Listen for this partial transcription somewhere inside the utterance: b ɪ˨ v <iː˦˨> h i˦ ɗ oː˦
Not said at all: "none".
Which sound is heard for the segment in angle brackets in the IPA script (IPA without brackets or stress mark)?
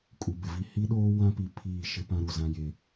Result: i˦˨